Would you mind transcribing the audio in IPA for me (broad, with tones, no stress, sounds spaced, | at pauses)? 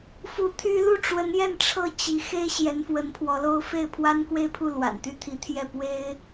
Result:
f u˧˥ t̪ʰ y˥ l u˥˩ ʈ͡ʂ w ə˧˥ n j ɛ˥˧ n ʈ͡ʂʰ ɤ˥˩ t͡ɕ i˧˥ x e˥ ɪ̯ ɕ j ɛ˧˥ n f w ə˧˥ n pʰ w ɔ˧˥ l o˥ ʊ̯ f e˥˩ ɪ̯ pʰ w a˥ n k w e˥˧ ɪ̯ pʰ u˥˩ l w a̰˨˩ n t̪ y˥˩ t̪ʰ i˧˥ t̪ʰ j ɛ˥˩ p w e˥ ɪ̯